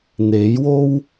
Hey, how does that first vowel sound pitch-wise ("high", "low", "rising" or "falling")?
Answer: rising